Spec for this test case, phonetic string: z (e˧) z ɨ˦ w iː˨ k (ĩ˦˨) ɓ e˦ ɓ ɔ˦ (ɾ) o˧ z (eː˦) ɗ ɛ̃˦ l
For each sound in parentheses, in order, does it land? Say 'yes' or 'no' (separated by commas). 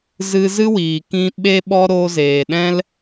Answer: no, no, yes, no